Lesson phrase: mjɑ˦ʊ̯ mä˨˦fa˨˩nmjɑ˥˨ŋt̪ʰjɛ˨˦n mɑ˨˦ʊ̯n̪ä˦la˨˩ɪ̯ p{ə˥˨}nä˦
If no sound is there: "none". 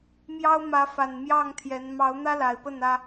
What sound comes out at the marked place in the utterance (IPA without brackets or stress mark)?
ə˥˨